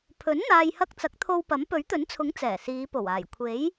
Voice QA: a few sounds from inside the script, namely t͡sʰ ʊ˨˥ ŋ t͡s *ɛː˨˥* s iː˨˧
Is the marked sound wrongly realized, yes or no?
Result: yes